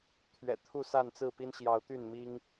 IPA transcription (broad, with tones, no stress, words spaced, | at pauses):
t̪ʰɥɛ̰˨˩t̪ʰu˥˨sa˥˨nt͡sɹ̩˥˨ pi˦nɕjɑ˨˦ʊ̯ t̪y˥˨n mi˦ŋ